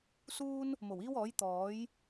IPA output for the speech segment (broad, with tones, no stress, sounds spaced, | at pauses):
s uː˥ n | m o˨˩ w iː˥ w ɔː˨˥ j t̪ ɔː˨˥ j